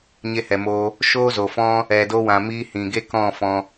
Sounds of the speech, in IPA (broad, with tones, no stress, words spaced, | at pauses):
ɲe˧hɛ˨moː˧ | ʃoː˦zo˨fɔ̃˦ | ɛ˨do˧wã˨miː˧ hĩ˨ɡe˦kɔ̃˦˨fɔ̃˧